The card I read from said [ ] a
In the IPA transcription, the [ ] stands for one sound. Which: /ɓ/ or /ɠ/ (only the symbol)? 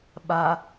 ɓ